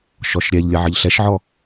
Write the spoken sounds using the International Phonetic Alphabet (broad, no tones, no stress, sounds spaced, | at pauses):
ʃ ɔ ʃ ɾʲ ɛ ʎ lʲ ə ʕ ə ʎ ɬ ɛ ʃ ʕ ɔ